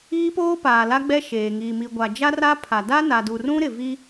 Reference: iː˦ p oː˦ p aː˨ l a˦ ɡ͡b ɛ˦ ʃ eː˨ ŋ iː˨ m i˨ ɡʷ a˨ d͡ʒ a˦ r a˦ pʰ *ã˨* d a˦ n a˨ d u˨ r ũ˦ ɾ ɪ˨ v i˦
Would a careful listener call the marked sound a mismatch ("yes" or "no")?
yes